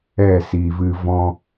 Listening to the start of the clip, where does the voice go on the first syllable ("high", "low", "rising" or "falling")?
falling